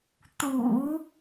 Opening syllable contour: low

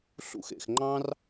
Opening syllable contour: high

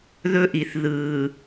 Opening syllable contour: high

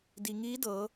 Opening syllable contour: low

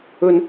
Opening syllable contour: high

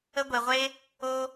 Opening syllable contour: high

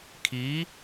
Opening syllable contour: rising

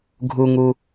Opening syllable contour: low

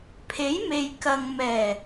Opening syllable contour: rising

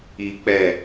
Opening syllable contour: low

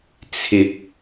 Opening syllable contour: rising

